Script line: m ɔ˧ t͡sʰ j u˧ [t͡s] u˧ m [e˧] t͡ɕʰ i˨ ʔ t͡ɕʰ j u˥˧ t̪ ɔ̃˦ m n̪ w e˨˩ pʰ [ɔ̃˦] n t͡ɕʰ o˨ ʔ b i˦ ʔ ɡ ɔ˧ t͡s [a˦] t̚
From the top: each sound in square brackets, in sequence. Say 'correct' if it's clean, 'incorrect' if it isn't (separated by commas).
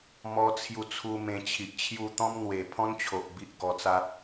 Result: incorrect, incorrect, correct, correct